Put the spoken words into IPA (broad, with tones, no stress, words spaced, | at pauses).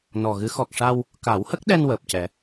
nɔ˨˩ɣɨ˧˥ xɔ˨˩k̚ʂa˧w | ka˨˩˦whə˦˥k̚ɗɛ˧n wəː˨˩p̚cɛ˨˩˦